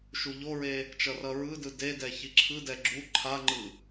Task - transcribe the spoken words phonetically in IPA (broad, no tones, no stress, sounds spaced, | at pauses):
ʃ u ʎ o ɹ e | t͡ʃ ʌ r ʌ ɹ ɯ d ɯ d e d ɛ ç i ǁʰ ɯ d ɛ ɡ͡ǁ u ǃʰ a ŋ͡ǃ ɯ